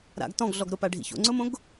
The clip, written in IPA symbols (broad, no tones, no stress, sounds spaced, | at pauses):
ɾ a̰ ɡ t ɔ̃ ɡ ɮ ɔ ɡ ɾ ʊ p a ɖʱ ḭ ç o̰ ŋ͡ǀ ʊ m õ ɡ